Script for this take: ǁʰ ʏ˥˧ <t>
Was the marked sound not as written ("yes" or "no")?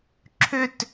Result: no